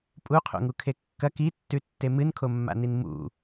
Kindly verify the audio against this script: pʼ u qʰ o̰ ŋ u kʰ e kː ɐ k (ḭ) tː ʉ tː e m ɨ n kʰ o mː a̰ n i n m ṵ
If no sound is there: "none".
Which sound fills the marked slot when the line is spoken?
i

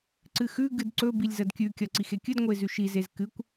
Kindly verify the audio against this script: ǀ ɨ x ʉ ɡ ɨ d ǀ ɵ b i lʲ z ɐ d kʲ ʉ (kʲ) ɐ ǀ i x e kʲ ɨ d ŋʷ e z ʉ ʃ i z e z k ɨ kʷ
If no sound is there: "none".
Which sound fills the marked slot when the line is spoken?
kʲ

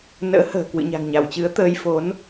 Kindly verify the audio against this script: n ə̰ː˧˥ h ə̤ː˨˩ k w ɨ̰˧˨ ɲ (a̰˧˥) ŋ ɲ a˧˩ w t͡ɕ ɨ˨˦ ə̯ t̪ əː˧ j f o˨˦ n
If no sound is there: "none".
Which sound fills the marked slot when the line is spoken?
a̤˨˩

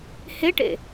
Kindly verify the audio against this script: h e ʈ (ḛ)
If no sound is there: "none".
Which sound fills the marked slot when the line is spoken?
ḛ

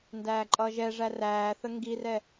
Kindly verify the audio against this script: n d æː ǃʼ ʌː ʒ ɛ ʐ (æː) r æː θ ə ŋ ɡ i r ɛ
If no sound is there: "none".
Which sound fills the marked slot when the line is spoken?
æ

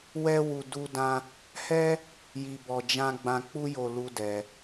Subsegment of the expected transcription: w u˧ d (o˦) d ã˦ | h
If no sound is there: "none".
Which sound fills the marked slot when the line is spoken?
u˦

